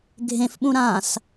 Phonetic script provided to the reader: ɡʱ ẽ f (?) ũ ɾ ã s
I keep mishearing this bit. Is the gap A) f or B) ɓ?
B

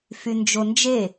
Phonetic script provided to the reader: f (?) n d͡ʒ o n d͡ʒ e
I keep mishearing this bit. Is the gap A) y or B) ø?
A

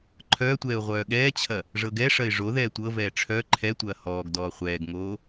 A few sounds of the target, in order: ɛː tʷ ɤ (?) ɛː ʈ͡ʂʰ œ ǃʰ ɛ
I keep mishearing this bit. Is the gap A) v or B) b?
A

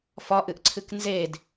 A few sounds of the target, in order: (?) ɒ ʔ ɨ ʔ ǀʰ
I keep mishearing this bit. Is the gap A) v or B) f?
B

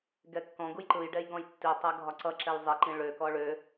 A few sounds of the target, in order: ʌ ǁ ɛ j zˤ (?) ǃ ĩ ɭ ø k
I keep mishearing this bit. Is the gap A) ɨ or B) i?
B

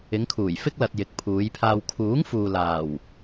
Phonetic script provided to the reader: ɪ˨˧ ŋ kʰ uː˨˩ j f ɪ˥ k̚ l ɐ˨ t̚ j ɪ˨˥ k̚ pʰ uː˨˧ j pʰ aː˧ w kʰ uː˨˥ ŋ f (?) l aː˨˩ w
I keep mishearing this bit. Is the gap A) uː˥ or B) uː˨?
B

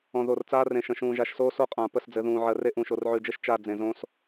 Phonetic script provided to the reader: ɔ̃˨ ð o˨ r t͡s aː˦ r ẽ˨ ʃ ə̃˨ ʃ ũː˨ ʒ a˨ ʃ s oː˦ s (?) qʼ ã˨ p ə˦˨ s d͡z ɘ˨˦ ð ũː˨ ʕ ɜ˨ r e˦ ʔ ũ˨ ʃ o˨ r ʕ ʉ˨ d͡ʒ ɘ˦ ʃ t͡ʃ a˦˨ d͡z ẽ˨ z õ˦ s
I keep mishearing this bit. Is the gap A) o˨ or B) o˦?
B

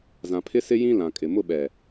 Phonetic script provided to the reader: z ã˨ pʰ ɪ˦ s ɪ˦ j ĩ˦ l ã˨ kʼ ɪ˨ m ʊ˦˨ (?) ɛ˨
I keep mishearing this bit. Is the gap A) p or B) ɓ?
B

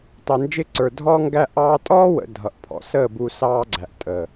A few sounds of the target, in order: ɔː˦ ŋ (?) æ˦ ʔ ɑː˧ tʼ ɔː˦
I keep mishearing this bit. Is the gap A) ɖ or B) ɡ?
B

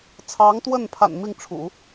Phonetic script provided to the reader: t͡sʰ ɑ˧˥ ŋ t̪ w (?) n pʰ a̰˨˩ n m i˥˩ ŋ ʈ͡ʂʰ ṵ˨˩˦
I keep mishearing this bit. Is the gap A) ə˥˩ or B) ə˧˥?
A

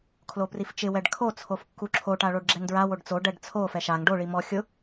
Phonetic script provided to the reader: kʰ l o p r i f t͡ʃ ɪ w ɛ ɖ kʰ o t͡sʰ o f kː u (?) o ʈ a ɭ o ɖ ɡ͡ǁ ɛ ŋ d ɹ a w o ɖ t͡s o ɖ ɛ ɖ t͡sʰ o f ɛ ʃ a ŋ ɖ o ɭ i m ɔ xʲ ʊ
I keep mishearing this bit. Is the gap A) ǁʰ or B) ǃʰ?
A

